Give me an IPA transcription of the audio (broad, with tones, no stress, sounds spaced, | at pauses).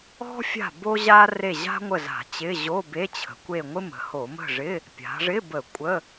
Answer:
ɔ̤˥ fʲ a̤˦˨ b o˥ ʑ a˥ r e˦˨ ʑ a̤˥ ŋʷ ə˦˨ z a̤˧˩˧ t͡ɕ ɪ˧˥˧ ʑ o˧˥˧ b e˧˥˧ t͡ɕʰ ə̤˩˧ kʷ e˦˨ ŋʷ ɪ˥ m ə̤˩˧ h o˧˩˧ m ə̤˦˨ ʐ ɪ˧˥˧ | pʲ a̤˩˧ ʐ ɪ˧˥˧ b ə˧˩˧ kʷʼ ə˧˥˧